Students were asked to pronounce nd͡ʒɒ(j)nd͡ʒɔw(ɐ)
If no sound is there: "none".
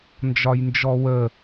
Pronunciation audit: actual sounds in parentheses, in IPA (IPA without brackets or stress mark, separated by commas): j, ə